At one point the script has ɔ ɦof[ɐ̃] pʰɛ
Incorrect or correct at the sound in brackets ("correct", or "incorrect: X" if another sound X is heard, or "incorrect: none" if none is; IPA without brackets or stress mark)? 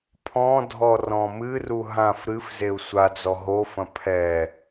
correct